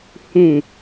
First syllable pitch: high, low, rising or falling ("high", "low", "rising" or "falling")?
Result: low